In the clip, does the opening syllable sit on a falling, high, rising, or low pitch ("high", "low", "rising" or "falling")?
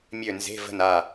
falling